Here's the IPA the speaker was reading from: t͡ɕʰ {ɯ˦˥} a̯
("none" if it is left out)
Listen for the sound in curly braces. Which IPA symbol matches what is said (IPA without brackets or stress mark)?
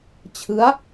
ɯ˦˥